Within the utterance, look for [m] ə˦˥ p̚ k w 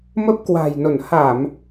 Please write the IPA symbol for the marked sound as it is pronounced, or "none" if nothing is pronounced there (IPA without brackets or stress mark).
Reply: m